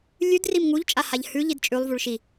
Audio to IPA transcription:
lʲ ʉ d r i m ŋ u ʎ t͡ʃʼ a h a ʎ h ʉ ʎ i d t͡ʃʼ ʉ lˠ v u ɭ ʃ i

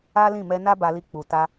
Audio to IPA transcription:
a˦ l ĩ˦˨ m ɛ˧ n a˦ b a˧ l i˧ k͡p u˨ t a˧

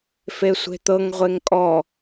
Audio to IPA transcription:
f e sʷ e̤ t̪ ɤ ŋ ʁʷ e ŋ kʼ ɔ

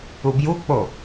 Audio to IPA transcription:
u b j u k͡p o

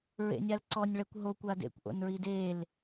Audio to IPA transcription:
ɹ ḛ nʲ a l ǀ ɔ nʲ ɭ ɛ kʷ ɦ o kʷ a d ḛ kʷ ʔ o̰ n ɹ i d e l

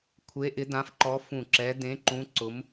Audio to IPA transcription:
kʷʰ e˨˦ ʔ ɪ˨˦ d ã˨˦ f ǃ ɔ˨˦ f ũ˧˩ ǁ ɛ˨˦ d ẽ˨˦ ǃ ũ˨˦ ǀ ʊ˨˦ m

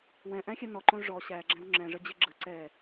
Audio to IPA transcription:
w ɛ̃ ʔ æ̃ xʲ ɛ n ɔ ǃ õ ʐ ɔ ɕ æ ɡ͡ǁ æ̃ w ŋ͡ǁ ɛ̃ ʐ ə d͡ʑ ɘ ɡ͡ǁ ə ǀ ɛ

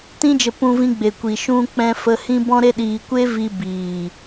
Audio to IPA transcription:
t ĩ˦ d͡ʒ ə˧ p ũ˧ v ĩ˧ ɡ͡b e˨ kʷ i˨ ʃ ũ˧ k͡p ɛ̃˧ f ə˧ h ĩ˦ b ɔ̃˦ ɾ e˦ ɗ iː˧ kʷ e˦ v i˧ b iː˨

